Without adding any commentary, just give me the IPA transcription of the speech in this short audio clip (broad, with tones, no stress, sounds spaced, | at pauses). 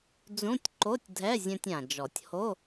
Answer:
d͡z ũ˧˥˧ tʲ ǃ o˧˥˧ tʲ dʱ ɛ˧˥˧ zʲ ɐ̃˧ tʲ ã˩ d͡ʒ ɔ˨˩˦ tʲ h o˧˥˧